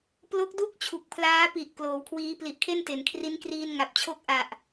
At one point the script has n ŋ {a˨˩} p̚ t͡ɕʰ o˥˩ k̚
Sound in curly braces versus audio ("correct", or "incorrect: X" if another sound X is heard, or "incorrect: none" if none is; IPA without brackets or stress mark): correct